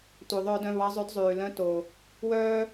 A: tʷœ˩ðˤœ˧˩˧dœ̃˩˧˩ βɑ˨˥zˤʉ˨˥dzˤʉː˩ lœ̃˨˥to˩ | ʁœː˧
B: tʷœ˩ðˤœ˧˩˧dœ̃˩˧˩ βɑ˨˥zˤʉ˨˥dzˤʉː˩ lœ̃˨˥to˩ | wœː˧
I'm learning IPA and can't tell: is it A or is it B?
B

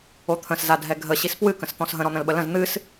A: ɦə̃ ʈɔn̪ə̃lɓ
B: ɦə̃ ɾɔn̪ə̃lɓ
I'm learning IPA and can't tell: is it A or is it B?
B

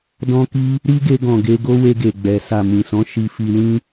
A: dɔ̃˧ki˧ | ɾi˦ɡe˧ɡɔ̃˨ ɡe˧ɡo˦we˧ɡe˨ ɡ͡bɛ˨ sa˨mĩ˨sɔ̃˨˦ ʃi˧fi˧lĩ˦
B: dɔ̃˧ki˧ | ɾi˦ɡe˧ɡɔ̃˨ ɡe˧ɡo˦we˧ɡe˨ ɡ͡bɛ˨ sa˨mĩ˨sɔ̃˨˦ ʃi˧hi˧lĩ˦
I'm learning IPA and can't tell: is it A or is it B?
A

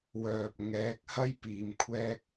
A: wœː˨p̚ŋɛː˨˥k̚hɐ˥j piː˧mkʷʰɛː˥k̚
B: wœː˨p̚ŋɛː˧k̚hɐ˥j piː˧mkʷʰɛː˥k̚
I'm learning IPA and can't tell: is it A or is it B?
A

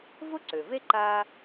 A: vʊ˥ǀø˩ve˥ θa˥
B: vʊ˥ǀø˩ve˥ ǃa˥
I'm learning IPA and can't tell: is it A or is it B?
B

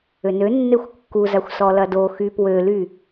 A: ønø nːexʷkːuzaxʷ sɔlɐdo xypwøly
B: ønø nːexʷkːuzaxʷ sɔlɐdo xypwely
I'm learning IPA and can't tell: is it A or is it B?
A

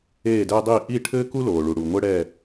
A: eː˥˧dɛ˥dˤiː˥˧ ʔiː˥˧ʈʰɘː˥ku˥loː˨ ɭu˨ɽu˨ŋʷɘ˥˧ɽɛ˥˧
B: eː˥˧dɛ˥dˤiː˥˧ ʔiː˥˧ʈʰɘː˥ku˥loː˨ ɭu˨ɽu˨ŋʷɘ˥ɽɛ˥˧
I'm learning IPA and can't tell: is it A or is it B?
B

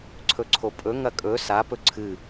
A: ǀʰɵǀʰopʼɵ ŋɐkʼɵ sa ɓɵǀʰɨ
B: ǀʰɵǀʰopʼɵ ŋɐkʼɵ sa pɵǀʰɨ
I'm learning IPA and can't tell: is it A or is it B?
B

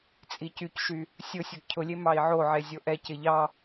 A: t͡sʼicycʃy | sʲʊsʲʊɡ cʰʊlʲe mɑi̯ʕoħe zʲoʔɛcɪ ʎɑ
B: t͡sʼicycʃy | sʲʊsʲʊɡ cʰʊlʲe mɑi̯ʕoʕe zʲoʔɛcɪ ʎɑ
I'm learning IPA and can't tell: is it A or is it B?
B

